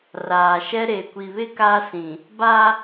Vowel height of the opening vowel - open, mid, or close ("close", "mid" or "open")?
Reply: open